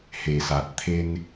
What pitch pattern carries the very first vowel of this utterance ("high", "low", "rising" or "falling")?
low